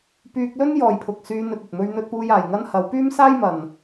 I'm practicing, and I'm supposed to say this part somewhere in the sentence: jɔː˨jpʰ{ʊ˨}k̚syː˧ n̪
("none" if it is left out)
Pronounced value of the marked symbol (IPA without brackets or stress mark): ʊ˨